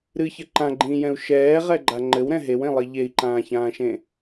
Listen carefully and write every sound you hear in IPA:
ɾ ɨ ç ɘ ǃ ã ɡ͡ǃ ĩː j ɛ̃ u̯ ʃ ɛː ʁ ɛ ɡ͡ǃ a ŋ͡ǃ ɘ w ɾ ɛ̃ ɦ e w ẽ lˠ i ʎ e i̯ ǃ ãː ç ãː ʃ ẽ

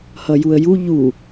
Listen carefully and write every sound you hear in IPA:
h ʌ j u ə̯ j u ʎ u

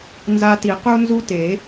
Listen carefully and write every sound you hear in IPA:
n z a˧ t i˨˩˦ q u˧ n z u˧ t e˨˩˦

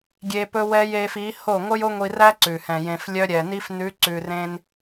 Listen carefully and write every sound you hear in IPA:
ɡʲ e˧ p ɵ˦ w ɛ˦ j e˧ f i˨˦ h o˦˨ ŋʷ œ˦ j o˦ ŋʷ i˧ r æ˦ ǀ ʉ˨ h ɛ̃˨ j ẽ˨ f lʲ œ˧ ɾʲ ɛ˨ n i˧ f n ʉ˨˦ ǀ ʉ˨ r ẽ˧ n

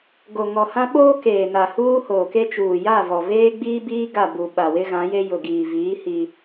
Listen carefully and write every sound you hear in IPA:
ɡ o˨ ŋ ɔ˨ h ã˦ ɓ oː˦ k eː˨ n a˨ h uː˦ h oː˨ k e˦ t͡ʃ uː˨ j a˦˨ v ɔ˨ v eː˦ ɡ͡b iː˦ b iː˦ ɡ a˦˨ b u˨ ɓ a˨ w ɪ˦ ɣ ã˨˦ j e˦ j ʊ˨ ɡ iː˨ v iː˨˦ h i˦

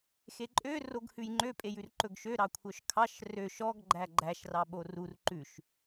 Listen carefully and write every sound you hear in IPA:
x e ǃʼ ø r o ɡ h ʉ j ŋ͡ǃ ø pʼ e j ʉ r ǃ ɵ ɡ ʃ ø ɾ ɑ kʷʰ œ ʃ kʰ ɑ ʃ r ø ʃ ɔ ɡ ɡ͡ǃ æ ɡ͡ǃ æ ʃ r ɑ ɓ o r u r ǃ ʉ ʃ

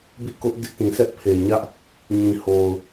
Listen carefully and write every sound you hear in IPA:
b ḭ˦˨ k ʊ˦ ʔ d ɪ˦ ʔ t ĩ˨ s ɛ˦ ʔ pʰ e˨ ɲ ä˦ ʔ | ɲ ĩ˨ h o˨ ʊ̯

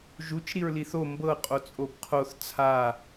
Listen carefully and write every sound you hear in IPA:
ʒ u t͡ʃ ɾ i ɹ l i θ o m b ɤ qʼ o t͡sʼ o b qʰ o θ t͡sʰ a

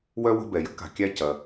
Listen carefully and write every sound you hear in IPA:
w œ˥ w ə̤˦ b ɛ˩ j ə̤˥ k a̤˩ kʲ æ˦ c ɐ˩

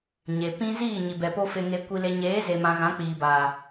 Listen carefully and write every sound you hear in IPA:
ɲ e˨ p ĩ˦ z iː˦˨ ɲ i˨ b ɛ˨ p o˧ f e˧ ŋ e˧ kʷ i˧ l e˧ ɲ eː˨˦ z e˨ m ã˨ ɣ ã˨˦ k͡p iː˨ b aː˨

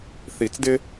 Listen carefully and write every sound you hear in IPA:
θ i˨˩˦ t͡s d ɪ˦

